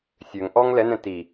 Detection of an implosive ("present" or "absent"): absent